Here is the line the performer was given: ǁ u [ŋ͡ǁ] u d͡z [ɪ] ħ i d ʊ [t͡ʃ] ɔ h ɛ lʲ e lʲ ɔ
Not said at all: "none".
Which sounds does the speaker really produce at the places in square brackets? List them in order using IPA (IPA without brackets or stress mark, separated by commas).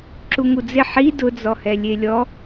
ŋ, ɪ, d͡z